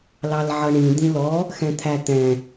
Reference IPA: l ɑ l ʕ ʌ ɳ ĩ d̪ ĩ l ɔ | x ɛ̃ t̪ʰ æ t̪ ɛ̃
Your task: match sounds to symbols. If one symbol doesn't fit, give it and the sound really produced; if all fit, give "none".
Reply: none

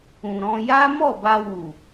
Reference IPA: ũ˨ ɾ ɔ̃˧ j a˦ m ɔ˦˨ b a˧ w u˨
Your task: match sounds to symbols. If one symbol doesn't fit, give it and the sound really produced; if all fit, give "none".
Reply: none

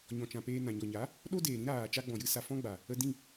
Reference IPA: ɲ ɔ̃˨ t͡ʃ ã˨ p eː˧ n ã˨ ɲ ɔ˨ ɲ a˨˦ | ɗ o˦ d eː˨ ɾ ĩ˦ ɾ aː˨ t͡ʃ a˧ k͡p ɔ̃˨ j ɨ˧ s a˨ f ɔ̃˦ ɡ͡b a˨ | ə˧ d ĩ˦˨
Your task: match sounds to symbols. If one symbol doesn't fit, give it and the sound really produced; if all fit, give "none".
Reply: k͡p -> ɡ͡b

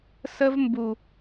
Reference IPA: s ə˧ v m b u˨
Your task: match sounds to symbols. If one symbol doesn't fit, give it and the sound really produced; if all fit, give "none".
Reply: none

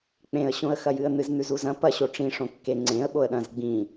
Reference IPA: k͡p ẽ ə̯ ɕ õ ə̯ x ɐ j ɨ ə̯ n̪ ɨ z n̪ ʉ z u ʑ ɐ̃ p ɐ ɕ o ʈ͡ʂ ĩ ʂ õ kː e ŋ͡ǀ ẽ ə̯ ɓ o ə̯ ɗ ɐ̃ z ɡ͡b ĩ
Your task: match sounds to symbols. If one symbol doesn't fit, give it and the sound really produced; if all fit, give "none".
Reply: ʑ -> z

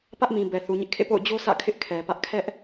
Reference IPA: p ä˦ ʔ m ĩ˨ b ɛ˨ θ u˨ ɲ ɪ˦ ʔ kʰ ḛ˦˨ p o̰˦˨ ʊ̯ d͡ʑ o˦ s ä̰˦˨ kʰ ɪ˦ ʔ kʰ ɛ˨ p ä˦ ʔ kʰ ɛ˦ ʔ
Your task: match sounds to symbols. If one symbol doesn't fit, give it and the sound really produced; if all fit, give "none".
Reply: none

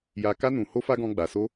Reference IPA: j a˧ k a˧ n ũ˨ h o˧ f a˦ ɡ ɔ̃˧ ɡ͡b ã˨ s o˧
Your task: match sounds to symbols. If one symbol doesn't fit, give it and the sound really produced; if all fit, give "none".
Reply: ã˨ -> a˨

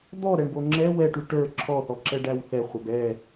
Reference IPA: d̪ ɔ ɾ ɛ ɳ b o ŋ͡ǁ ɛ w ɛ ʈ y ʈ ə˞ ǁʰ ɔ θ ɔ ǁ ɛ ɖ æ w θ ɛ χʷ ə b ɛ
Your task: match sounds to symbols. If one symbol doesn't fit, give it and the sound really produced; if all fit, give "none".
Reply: none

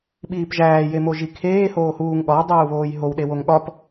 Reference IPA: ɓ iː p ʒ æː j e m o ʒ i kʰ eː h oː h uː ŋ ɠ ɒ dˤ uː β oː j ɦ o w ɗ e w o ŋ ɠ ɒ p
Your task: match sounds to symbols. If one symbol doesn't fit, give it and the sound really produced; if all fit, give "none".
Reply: none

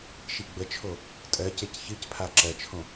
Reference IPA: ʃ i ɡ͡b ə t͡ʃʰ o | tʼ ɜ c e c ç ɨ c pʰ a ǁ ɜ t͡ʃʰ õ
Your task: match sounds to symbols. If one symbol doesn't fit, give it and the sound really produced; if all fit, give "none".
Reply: none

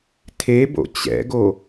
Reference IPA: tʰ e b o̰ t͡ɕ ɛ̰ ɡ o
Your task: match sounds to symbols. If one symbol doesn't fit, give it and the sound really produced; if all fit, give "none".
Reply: none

